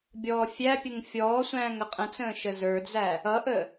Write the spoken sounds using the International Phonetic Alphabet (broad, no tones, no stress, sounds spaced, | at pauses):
bʲ ɔː fʲ æ pʲ ə ŋ fʲ ɔː sʷ æ̃ː ŋ ə qʼ ə̃ t͡s ə̃ː ʃ ə z ə˞ d͡z æ | ʌ ʔ ə